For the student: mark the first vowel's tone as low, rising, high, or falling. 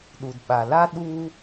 low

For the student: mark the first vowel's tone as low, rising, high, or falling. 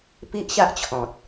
high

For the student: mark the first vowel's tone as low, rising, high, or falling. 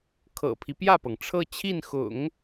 low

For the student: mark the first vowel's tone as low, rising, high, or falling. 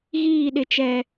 falling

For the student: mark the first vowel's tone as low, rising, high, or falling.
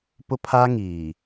high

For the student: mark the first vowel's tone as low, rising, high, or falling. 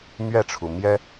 falling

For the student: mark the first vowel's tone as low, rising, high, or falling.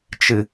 low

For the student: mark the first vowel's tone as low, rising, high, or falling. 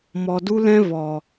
low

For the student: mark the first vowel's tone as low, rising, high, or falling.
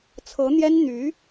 rising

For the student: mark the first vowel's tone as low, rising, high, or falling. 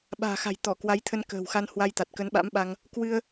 low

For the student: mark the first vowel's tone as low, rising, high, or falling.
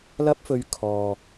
high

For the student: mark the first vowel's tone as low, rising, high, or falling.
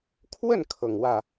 falling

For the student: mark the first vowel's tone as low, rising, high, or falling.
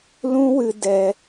high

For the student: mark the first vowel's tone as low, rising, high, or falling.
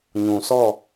low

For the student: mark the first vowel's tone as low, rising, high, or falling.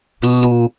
high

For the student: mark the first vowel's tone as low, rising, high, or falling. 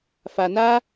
low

